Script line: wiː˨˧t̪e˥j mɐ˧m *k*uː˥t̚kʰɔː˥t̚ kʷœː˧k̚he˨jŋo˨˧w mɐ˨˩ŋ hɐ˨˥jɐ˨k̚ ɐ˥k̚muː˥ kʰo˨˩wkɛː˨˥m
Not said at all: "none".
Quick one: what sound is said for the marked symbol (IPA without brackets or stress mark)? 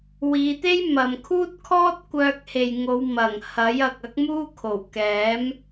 kʰ